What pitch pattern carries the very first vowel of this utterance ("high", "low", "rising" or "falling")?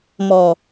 low